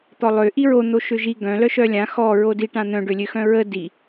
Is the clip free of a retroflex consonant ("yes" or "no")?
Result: no